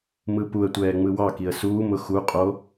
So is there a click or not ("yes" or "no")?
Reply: no